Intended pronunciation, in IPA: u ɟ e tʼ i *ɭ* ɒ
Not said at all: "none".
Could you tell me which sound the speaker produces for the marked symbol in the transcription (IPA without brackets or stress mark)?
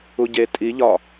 ʎ